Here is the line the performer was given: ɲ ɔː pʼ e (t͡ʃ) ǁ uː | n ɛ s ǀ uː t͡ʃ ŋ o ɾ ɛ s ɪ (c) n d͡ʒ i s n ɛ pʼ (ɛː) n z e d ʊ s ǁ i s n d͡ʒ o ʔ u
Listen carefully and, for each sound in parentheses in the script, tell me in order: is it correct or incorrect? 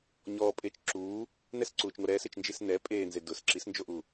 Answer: correct, incorrect, incorrect

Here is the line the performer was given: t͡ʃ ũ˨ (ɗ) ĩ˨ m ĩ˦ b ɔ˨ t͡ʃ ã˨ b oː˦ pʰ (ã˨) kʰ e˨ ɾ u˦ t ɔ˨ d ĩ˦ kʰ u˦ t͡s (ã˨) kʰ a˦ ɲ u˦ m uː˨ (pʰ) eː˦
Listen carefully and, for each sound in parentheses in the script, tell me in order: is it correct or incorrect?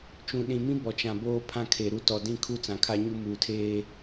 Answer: correct, incorrect, correct, incorrect

